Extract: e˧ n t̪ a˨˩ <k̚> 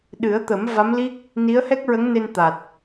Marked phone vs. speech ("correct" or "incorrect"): incorrect